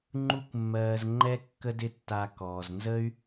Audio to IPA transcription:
ŋ͡ǃ u˥ kʷ mː ɜː˧ z ŋ͡ǃ ɛ˥ kː ə˥ d ɪ˥ tː a˧ k ɔː˩ z n z ə˥ y̯

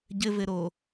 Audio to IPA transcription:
ɟ ɘ v ɘ ɾ o

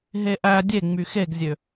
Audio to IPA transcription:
ɦ e ʔ æ dʲ e ŋ͡m y x e ɡ zʲ ø

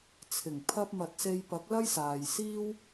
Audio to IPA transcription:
t͡sʰ ɪ˨˩ ŋ pʰ ɐ˧ p̚ m ɐ˨ t̚ s e˧ j p ɐ˨˥ k̚ l ɐ˥ j s aː˨ j s iː˥ w

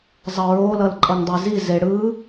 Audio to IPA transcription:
zˤ ʌ ɹ o l ʌ l ǃʼ ʌ ŋ dˤ e z i z e ɽ ɯ

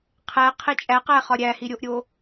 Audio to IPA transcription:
qʰ æ qʰ e t͡ʃʼ æ q æ χ ɒ ɾʲ æ h i ɾʲ o ʔ ɾʲ o

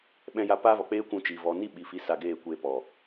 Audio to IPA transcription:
ɓ ɛ̃˧ j a˧ p aː˦ v ɔ˨ k͡p eː˦ kʷ ũ˧ t͡ʃ iː˨ v ɔ˨ n i˦˨ ɓ i˨ f i˨˦ s a˧ ɡ eː˦˨ kʷ eː˧ p ɔ˨

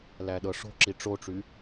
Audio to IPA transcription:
l æ ɗ ɤ ʂ o̤ ǁ i ʈ͡ʂ o ʈ͡ʂ y

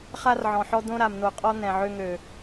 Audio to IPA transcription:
χ a˦ r ʕ ɔ̃˨ ħ ɔ˦ d̪ õ˦ ɾ a˨ m n̪ o˨ qʼ ɔ˦ n̪ ɛ̃˨ ʕ ø˦ ŋ ø˨

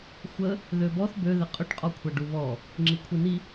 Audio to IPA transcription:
xʷ ə | ð ø b ɔ θ b ø ð ɪ qʼ ʊ ʈ qʼ ɔ kʷʰ a ɖ u β ɔ | ŋ͡ǁ i kʷʰ i n i

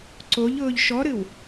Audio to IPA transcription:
ǀ o ʎ ʊː ʎ ʃ ɔ ɾ ɨ w

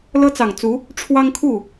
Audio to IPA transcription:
l ɤ˥ t͡s ɑ˨˩ ŋ t͡s u˧˥ | ʈ͡ʂʰ w ɑ˥ ŋ kʰ u˥˩

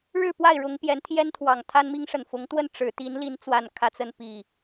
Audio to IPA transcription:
ɻ ɻ̩˥˨ p w a˥˨ ɪ̯ ɻ ʊ˨˦ ŋ p j ɛ˨˦ n t̪ʰ j ɛ˦ n t̪ʰ w ɑ˨˩ ŋ t̪ʰ a˦ n m i˦ ŋ ʂ ə˨˩ n f ʊ˨˦ ŋ t̪ w ə˥˨ n ʈ͡ʂ ɻ̩˨˦ t̪ i˨˦ n l i˨˦ n t͡s w a˨˩ n kʰ ä˦ t͡s ə˨˦ n p i˨˩

